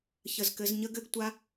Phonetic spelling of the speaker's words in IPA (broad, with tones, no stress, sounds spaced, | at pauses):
ç ə˦˨ z k ɘ˦˥ z ɲ ə˦˥ ɡ ɘ˦˥ ɡ tʷ a˦˥